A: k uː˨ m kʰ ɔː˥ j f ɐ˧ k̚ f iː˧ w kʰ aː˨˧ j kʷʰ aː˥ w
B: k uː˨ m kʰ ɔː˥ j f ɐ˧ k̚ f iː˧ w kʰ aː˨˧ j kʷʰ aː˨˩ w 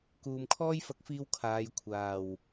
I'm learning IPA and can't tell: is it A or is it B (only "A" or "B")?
B